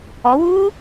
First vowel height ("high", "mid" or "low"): mid